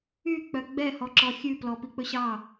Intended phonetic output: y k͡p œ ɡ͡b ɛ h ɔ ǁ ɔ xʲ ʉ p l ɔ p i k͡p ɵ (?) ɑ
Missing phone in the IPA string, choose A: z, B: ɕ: B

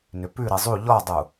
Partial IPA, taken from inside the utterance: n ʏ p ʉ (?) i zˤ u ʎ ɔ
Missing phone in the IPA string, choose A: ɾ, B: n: A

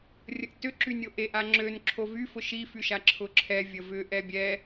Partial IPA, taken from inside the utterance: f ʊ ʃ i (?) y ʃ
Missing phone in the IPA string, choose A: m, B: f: B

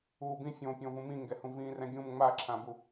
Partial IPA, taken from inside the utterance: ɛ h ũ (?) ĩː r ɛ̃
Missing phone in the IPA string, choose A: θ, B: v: B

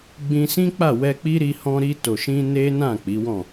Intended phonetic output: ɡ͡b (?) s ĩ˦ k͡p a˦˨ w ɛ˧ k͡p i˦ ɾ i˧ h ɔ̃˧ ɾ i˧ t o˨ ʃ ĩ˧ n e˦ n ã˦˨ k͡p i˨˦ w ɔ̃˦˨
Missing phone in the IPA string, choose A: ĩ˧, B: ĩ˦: A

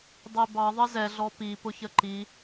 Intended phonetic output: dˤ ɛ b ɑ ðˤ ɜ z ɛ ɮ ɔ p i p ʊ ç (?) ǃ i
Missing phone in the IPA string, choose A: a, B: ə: B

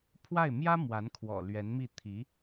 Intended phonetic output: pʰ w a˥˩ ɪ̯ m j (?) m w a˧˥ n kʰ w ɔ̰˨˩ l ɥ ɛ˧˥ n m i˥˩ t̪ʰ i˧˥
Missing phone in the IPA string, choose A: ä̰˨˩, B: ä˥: B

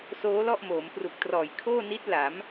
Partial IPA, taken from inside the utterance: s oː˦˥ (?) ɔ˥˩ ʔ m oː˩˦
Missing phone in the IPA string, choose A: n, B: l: B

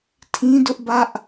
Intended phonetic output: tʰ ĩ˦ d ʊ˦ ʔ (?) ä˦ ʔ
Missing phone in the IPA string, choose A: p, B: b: B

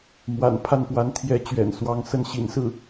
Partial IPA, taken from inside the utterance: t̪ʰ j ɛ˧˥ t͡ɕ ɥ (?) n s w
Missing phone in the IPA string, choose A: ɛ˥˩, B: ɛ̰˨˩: B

